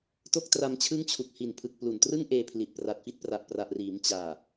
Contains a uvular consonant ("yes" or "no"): no